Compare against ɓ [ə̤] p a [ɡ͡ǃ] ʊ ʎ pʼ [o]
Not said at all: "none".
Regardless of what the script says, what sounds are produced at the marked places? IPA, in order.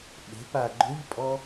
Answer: ə̤, ɡ͡ǃ, ɔ

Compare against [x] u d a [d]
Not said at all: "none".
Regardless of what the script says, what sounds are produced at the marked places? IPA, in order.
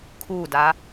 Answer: kʰ, none

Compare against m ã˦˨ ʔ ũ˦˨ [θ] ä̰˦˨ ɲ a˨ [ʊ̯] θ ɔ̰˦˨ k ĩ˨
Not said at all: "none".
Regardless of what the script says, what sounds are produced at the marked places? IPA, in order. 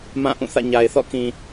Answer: θ, ɪ̯

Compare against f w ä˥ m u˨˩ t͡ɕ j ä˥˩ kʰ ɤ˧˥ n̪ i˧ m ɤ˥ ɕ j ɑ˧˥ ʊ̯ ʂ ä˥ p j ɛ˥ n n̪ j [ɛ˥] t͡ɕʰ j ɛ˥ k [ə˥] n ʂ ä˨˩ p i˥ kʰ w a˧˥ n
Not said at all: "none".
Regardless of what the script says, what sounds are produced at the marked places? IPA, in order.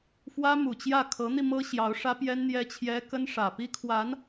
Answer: ɛ˥, ə˥

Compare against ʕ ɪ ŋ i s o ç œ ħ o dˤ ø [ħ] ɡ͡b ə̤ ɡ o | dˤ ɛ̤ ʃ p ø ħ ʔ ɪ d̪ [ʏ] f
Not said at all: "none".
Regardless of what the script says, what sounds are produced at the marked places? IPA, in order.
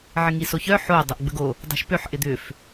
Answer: ʔ, ʏ

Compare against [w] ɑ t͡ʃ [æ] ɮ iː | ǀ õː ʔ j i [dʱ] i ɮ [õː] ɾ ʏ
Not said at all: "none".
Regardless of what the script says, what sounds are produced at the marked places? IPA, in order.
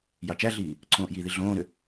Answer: j, æ, ð, õː

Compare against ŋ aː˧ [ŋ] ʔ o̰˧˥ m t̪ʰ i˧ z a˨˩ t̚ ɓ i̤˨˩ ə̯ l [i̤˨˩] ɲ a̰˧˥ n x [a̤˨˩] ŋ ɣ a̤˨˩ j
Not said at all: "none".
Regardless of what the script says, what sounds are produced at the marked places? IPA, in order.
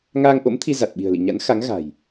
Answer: ŋ, ḭ˧˨, a˨˦

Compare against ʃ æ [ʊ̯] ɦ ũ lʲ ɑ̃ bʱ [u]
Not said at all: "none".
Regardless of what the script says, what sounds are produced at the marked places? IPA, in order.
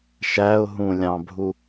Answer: ʊ̯, u

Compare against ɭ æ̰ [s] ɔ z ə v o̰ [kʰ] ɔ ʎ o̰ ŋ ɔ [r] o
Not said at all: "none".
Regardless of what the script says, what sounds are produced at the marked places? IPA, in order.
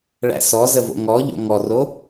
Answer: s, ŋ, r

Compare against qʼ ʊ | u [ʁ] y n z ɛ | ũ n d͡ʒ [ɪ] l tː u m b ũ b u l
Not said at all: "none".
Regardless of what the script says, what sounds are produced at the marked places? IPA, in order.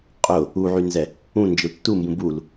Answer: ʕ, ɪ

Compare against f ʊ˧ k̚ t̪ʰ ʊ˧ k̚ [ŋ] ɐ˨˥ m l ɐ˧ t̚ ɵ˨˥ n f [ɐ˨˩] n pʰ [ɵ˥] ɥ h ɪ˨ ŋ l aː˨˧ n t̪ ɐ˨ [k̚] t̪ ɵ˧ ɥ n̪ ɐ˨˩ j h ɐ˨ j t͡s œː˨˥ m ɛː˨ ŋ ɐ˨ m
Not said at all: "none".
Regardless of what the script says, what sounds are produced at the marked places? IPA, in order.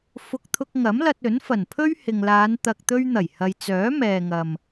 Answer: ŋ, ɐ˨˩, ɵ˥, k̚

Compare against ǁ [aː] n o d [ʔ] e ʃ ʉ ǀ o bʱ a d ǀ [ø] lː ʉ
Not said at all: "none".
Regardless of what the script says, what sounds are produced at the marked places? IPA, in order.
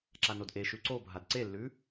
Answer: a, ʔ, e

